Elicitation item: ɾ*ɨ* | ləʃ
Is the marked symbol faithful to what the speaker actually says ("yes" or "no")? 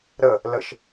no